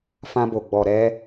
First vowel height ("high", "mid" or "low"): low